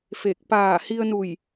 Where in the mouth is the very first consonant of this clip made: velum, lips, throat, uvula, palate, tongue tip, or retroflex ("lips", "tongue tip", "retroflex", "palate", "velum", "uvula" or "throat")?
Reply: lips